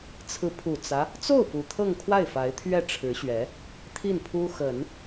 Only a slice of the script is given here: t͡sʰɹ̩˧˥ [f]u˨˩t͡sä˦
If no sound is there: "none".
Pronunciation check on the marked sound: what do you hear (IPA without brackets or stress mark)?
pʰ